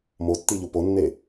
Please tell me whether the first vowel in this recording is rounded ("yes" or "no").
yes